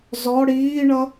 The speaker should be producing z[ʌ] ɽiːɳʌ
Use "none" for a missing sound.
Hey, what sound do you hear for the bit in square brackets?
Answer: ɔ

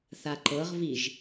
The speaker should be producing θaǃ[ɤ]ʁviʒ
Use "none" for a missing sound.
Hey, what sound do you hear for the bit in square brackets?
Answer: ɤ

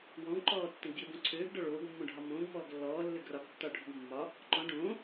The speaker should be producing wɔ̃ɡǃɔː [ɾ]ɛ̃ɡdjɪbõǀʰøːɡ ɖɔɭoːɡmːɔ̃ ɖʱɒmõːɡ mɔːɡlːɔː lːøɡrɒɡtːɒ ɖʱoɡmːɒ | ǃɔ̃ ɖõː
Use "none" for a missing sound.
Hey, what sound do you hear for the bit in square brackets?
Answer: tː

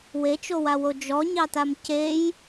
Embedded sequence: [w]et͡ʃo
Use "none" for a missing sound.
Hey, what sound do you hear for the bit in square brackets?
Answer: w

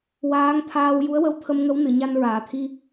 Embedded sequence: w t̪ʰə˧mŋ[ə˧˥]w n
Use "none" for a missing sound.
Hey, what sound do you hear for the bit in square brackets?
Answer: ə˧˥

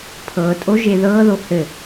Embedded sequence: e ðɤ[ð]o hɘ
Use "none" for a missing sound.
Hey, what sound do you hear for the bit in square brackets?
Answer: ð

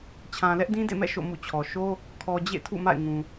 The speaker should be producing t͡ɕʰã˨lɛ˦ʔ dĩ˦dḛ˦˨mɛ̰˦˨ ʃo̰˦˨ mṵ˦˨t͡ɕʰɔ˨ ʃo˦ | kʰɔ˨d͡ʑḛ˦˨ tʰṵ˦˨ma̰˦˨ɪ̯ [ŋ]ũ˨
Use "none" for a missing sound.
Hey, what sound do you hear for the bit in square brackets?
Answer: ŋ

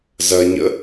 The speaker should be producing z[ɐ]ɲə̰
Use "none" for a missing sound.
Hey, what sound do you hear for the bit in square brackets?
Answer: ɐ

